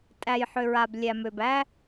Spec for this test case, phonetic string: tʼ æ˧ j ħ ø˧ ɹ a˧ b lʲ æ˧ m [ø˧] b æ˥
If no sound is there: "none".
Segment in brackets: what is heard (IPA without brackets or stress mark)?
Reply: ø˧